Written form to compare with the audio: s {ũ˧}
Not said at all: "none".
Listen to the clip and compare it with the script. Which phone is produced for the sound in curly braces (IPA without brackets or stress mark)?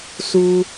u˧